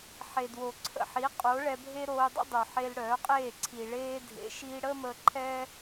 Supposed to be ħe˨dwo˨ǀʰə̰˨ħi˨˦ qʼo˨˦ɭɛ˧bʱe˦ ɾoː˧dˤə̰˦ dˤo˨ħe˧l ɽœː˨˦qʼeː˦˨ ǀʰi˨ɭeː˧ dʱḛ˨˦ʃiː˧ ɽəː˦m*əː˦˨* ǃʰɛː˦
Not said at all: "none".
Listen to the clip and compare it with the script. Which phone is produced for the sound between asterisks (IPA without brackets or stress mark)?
əː˧